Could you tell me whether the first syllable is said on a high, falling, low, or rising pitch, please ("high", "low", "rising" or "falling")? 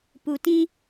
low